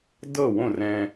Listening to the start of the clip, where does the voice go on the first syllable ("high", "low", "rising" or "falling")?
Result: falling